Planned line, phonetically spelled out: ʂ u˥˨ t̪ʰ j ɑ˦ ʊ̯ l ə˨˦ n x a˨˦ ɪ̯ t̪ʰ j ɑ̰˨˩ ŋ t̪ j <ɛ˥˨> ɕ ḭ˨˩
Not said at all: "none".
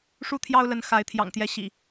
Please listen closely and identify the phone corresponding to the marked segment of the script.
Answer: ɛ˨˦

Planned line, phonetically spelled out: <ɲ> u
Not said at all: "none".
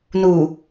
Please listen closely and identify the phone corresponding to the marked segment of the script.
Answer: n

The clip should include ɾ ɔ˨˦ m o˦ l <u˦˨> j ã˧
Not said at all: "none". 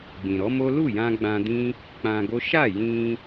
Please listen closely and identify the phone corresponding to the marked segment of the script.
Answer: u˦˨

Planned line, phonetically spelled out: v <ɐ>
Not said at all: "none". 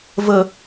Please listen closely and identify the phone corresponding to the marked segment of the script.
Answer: ə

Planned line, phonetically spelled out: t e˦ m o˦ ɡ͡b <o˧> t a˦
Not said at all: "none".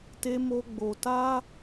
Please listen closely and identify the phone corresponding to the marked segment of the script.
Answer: o˧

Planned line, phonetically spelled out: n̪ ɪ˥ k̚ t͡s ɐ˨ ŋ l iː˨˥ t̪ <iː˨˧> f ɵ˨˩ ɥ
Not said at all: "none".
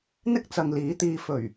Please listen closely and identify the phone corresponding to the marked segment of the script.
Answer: iː˧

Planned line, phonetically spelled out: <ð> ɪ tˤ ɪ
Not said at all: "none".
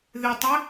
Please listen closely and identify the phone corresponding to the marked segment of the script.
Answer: ð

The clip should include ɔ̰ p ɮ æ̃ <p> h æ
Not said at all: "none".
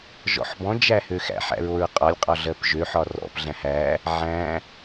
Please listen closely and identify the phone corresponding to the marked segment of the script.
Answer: none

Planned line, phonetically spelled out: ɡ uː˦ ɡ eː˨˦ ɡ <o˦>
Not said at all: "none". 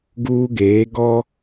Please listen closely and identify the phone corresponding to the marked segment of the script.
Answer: ɔ˦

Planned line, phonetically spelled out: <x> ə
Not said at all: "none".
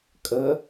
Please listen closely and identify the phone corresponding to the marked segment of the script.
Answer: kʼ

